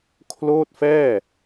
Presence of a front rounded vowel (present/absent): absent